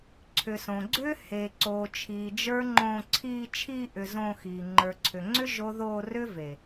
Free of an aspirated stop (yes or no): no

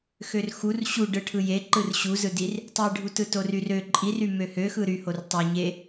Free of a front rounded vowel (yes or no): no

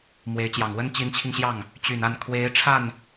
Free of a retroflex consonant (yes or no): no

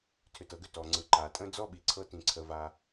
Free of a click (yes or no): no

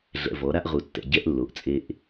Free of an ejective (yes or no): no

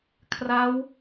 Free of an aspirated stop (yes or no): no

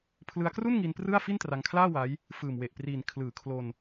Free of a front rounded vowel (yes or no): yes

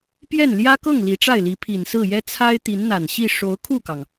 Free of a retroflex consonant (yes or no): no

